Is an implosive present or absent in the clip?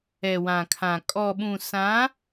present